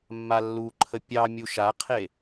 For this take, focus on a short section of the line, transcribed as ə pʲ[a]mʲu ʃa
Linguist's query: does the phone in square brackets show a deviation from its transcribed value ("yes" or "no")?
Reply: yes